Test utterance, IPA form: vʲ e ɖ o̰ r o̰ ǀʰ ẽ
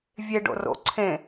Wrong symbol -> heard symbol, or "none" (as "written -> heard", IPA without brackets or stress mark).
none